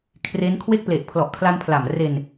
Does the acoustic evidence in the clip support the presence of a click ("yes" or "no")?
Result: no